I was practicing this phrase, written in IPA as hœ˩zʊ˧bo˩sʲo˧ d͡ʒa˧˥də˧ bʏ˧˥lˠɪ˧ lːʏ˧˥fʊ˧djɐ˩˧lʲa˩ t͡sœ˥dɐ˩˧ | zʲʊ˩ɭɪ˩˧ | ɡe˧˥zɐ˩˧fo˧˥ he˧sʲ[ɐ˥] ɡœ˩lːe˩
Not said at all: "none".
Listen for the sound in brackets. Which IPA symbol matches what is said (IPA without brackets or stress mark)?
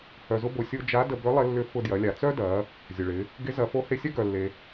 ɐ˥